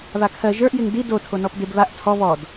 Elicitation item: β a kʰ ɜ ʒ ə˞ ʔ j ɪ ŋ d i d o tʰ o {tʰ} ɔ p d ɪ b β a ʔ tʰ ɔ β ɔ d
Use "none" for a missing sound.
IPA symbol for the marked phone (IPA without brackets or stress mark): n